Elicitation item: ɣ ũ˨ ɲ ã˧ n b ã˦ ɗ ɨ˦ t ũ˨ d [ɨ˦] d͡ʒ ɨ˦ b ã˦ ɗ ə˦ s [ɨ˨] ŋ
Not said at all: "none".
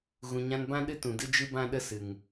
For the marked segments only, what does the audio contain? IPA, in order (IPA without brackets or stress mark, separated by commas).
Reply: ɨ˦, ɨ˨